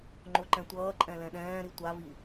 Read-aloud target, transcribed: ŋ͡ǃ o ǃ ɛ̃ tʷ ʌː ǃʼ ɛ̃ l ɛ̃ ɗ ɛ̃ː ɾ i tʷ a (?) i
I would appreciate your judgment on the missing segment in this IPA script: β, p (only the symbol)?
β